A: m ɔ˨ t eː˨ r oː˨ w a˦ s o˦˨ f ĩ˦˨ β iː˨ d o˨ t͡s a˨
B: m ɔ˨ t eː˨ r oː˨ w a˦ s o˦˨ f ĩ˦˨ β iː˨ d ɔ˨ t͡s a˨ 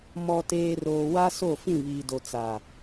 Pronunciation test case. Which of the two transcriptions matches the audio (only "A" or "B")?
A